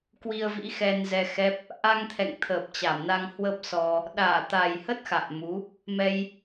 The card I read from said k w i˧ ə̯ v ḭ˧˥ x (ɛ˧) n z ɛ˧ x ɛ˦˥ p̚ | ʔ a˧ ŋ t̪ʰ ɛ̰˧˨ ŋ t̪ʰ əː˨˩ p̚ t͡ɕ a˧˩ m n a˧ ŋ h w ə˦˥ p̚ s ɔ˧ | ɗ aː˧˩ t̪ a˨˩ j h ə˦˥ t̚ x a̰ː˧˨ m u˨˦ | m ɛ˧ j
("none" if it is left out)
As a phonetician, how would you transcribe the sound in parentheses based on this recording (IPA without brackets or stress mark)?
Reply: ɛ˧